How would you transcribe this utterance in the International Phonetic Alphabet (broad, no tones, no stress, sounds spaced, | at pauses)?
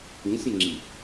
ĩ sʲ ə̃ ŋ͡ǁ i